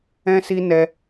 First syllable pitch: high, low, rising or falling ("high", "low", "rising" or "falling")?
high